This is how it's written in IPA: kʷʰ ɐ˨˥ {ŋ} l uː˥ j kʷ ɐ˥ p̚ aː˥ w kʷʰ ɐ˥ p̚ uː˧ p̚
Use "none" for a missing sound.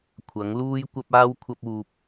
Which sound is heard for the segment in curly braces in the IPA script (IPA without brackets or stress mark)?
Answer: ŋ